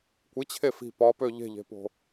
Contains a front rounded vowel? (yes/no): yes